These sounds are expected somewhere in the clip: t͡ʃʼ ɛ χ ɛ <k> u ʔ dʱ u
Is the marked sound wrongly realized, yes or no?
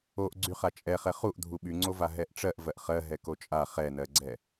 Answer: yes